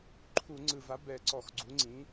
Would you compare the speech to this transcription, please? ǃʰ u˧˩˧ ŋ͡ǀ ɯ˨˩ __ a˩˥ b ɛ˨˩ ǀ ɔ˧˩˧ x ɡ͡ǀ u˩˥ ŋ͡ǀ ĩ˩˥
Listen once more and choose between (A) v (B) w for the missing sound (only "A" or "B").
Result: A